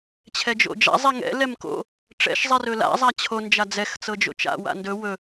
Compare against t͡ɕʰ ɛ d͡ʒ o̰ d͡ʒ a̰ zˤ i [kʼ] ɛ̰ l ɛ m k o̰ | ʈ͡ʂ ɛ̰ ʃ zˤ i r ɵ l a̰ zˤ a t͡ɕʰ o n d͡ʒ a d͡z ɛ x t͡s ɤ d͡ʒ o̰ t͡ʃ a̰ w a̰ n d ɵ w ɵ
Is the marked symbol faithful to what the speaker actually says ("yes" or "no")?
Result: no